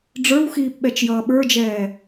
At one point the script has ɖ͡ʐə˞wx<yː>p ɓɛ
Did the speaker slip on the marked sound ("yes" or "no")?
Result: yes